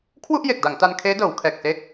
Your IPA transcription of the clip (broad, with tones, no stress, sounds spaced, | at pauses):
kʰ w u˥˩ ʔ j e˨˩ k̚ d a˩˦ ŋ t a˧ n kʰ eː˦˥ d ɤː˩˦ w kʰ ɛː˨˩ k̚ s e˦˥ k̚